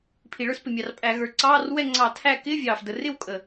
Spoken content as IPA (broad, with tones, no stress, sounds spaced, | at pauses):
pʰ i˨˩ ɭ ə˞˥˨ s p ɪ˨˩ mʲ ɑ˨˩ r pʼ æ˧˩˧ ɣ ə˞˨˩ ǀ ɑː˧˥˧ r w ɛ˥˨ ŋ͡ǀ ɑ˧˩˧ tʰ æ˥˨ k ɪː˧˥˧ vʲ ɑː˨˩ f d ə˨˩ r ɪ˥˨ w kʼ ə˨˩